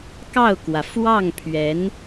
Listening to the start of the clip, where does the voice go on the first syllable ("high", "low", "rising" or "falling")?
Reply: falling